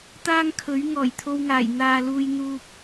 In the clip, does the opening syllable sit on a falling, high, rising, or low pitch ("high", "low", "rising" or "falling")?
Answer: high